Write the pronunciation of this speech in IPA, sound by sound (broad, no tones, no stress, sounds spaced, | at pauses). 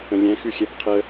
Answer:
ə̃ lʲ ɛ̃ x ʉ xʲ ɛ b qʰ ə